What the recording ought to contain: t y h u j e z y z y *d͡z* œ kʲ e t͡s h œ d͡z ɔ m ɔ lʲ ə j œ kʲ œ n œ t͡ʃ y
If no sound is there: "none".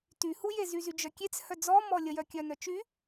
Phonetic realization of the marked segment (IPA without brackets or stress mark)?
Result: d͡ʒ